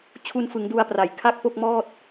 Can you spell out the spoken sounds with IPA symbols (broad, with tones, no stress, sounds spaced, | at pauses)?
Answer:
t͡ɕʰ u˧ n f ɯ˩˦ ŋ d u˧ a̯ p r a˨˩ j kʰ a˥˩ k̚ p o˥˩ k̚ m ɔː˥˩ t̚